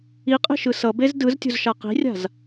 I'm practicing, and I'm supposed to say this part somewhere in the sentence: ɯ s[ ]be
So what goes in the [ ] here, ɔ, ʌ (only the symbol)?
ʌ